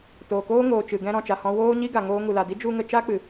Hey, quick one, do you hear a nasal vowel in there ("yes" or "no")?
yes